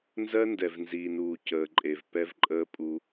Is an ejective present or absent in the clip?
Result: present